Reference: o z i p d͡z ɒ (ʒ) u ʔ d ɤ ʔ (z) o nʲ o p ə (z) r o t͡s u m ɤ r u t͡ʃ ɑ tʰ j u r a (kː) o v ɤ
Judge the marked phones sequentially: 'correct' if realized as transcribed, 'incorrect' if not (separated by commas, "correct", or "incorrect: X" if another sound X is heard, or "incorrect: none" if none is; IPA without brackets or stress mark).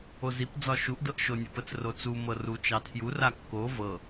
incorrect: ʃ, incorrect: ʃ, incorrect: t͡s, correct